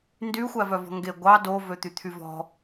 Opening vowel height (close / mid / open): close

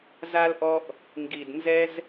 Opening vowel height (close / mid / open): open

